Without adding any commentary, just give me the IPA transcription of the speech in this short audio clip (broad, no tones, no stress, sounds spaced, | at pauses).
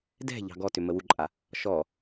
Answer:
d ɛ̤ ʎ ɑ̤ ɡ ɔ t ʏ m ə w u ǃʼ a | ʃ ɔ